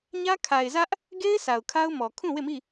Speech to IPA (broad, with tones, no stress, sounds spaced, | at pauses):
ɲ ä˦ kʰ a˨ ɪ̯ z ä˦ ʔ | ɡ e˦ ɪ̯ s a˨ ʊ̯ kʰ a˦ ʊ̯ m ɔ˨ kʰ ũ˦˨ w e˦˨ m i˦˨